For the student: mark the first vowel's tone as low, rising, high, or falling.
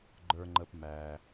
low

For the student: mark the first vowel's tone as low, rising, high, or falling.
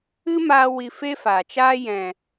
high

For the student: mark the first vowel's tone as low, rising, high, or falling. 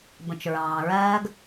low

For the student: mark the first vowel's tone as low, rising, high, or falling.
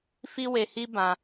high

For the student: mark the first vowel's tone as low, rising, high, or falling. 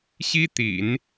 high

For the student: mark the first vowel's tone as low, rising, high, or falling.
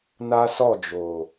high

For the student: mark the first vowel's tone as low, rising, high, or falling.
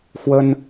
high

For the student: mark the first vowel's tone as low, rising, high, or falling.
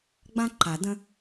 high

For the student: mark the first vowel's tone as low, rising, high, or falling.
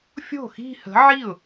falling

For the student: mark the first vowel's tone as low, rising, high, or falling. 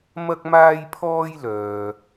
high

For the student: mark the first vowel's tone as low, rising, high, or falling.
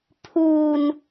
low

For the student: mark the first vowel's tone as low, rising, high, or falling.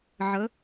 rising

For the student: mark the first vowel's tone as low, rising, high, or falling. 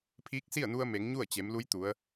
rising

